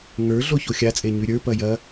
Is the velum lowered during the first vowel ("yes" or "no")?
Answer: no